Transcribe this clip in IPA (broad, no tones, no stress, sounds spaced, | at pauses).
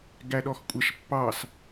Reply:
ɡ æ ɗ ɔ x kʷʼ a ʃ pː ɑ s